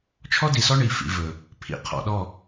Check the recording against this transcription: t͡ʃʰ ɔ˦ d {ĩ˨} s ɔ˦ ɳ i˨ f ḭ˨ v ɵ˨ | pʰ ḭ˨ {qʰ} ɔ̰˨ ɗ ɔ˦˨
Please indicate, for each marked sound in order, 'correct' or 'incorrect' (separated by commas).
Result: incorrect, correct